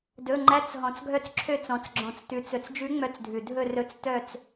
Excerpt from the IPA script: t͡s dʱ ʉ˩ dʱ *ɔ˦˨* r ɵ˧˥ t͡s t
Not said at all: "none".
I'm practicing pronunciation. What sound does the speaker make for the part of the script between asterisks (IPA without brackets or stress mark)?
ɵ˦˨